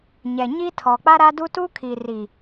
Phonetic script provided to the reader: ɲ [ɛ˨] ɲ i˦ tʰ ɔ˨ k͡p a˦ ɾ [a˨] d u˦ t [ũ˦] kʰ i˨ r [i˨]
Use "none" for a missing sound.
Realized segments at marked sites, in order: ɛ˨, a˦, u˦, i˨

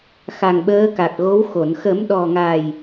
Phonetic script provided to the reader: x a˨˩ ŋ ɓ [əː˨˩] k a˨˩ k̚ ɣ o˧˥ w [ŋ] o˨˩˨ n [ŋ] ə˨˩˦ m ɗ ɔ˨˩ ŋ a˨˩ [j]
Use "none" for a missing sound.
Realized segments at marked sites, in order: əː˧˥, x, x, j

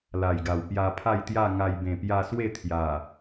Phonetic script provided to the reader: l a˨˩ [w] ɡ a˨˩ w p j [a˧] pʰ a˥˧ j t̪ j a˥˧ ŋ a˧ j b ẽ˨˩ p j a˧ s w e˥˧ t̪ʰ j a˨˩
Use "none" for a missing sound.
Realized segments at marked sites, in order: j, a˧

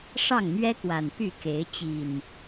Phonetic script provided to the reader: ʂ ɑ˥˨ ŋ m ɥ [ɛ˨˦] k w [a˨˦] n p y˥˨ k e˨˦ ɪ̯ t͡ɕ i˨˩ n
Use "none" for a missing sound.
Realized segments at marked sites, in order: ɛ˦, a˨˩

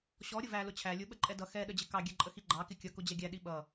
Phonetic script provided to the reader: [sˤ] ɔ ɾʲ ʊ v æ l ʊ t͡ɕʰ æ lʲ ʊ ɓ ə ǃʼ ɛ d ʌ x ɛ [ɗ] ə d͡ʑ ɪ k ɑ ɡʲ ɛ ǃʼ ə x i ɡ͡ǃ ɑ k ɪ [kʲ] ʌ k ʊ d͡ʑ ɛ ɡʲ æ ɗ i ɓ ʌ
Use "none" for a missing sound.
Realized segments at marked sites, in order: ɕ, ɗ, kʲ

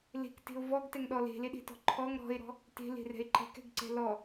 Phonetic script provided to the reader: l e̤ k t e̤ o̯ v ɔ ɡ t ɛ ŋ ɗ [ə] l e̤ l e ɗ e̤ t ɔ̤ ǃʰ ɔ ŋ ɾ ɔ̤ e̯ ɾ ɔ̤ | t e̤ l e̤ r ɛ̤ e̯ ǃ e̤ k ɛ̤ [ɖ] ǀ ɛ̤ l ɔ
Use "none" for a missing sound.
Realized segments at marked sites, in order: ɔ, ɡ

